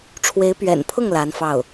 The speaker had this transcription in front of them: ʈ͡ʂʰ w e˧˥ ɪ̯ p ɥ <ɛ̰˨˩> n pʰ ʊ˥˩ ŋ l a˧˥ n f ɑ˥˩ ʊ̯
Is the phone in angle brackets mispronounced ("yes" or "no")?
no